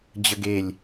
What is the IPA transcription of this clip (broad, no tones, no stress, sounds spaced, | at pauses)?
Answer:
d͡ʑ ə ɡ e lʲ